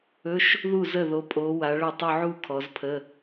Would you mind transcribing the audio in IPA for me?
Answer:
ɵ˧˥˧ʃ | ðu˥˩zə˥˩ðo˨˦pʼo˨˦ wa˨˦ɭɵ˥˩ tˤo˥˧ʕu˥˧ kʰɔ˨˦zpʰə˧˥˧

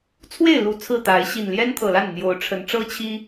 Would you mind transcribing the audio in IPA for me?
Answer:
t͡sʰwe˥˨ɪ̯lu˨˩ t͡sʰɹ̩˥˨t̪a˨˦ɪ̯ ɕi˨˩nljɛ˦nt̪ʰɤ˨˩la˥˨n n̪jo˨˦ʊ̯ʈ͡ʂʰə˨˦n ʈ͡ʂɤ˦t͡ɕʰi˦

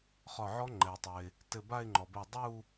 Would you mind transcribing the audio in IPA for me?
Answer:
χɒ˧˩ʕɔ˦˥ ŋ͡ǃɛ˩ʊ̯tˤɘ˩ɪ̯ | tɘ˧˩ba˥˧ɪ̯ŋ͡ǃɔ˩bɛ˧˩ dˤu˥˧

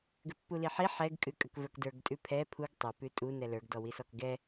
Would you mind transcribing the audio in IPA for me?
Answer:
ɡʏpːuliħi ħɛɡ kʼʉkʼəkvə˞kdə˞ɡ tʼʉpʰɛ pʰuɡ tˤʏ pʉtʼu nɛlə˞ɡ dɔwisɔkɡɛ

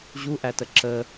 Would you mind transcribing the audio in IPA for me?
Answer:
ʑuʔætə ǁə

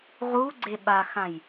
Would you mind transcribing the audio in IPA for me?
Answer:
ʁuɡ͡ǀe ɓaxãj

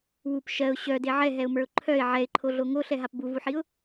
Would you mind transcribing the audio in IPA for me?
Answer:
wup ʃɜʊ̯ ɕœde ʕɛɦɛʊ̯mə˞ʊ̯ ǃʰœɪ̯ ʕɛɪ̯ǃʰoɮo ŋoɬɛɦap buvuħiʊ̯

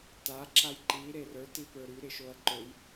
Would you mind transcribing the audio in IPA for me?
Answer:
ta ǁajǃi ɾerə˞ tipə˞ɾy ɾɪʃoɐ̯ǃøj

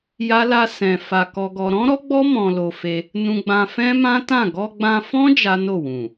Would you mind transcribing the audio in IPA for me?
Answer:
ja˦la˦sɛ̃˧ fa˧ kɔ˧ɡɔ˧ ɾɔ̃˦ɾɔ˦ɡ͡bɔ˦ mɔ̃˧lo˧fe˧ | nũ˧ɡ͡bã˧ fɛ̃˦mã˦tã˦˨ ɡɔ˧ɡ͡bã˧fɔ̃˦ d͡ʒa˦no˦˨wũ˨

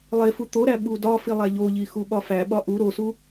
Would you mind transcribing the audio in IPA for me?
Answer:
lˠefu t̪oɾæ ɓudɒfi lˠæʎoʎi xuɓɒfæɓɒ ʔu ɾosu

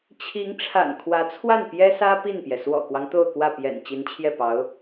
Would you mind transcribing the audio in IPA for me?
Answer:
t͡ɕʰi˧˥ŋ ʈ͡ʂʰa̰˨˩nkʰwä˧˥t͡sʰwa˥˩n pjɛ˥sä˥ pi˥˩npjɛ˩ swɔ̰˨˩kwɑ˦ŋ t̪o˥˧ʊ̯kwä˥˩ pjɛ̰˨˩n t͡ɕi˧˥nt͡ɕʰjɛ˥˩pɑ˧˥ʊ̯

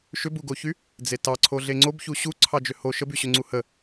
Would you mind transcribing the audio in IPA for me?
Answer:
ʃʏbuɡoçy | d͡zetɑǀʰo ɮeŋ͡ǀobçu ɕu ǀʰɑd͡ʒʏho ʃəbyɕʏŋ͡ǀu hə

